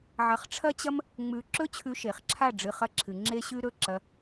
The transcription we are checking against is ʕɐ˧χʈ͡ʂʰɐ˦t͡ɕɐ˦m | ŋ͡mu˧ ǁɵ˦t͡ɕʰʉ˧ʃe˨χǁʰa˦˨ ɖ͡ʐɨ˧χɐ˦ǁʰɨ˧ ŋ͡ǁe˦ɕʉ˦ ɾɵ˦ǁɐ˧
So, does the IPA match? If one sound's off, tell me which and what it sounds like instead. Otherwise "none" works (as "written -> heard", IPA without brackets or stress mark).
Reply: u˧ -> ʉ˧